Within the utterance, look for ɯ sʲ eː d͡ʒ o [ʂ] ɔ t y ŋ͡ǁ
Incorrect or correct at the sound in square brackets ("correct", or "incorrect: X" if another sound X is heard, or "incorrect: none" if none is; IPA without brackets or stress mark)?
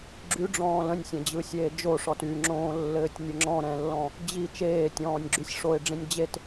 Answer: correct